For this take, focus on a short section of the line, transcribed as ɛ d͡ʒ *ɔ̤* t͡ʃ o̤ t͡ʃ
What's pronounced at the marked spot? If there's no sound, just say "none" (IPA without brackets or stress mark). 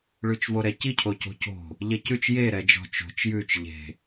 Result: ɔ̤